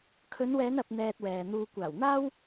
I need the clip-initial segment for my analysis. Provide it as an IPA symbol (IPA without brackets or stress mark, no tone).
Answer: kʰ